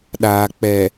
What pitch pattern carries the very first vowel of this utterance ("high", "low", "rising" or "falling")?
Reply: low